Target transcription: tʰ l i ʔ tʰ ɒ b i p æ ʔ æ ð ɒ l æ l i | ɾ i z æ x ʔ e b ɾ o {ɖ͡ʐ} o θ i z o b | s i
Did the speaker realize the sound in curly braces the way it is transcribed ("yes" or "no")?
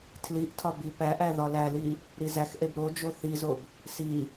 no